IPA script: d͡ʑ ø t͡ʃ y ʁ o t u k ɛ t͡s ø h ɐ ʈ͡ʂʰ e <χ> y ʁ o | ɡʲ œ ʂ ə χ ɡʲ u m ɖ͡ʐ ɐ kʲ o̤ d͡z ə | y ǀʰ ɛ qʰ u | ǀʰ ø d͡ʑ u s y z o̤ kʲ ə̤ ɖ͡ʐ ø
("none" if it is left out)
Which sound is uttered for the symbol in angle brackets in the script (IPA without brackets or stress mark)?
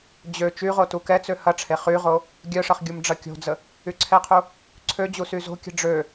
χ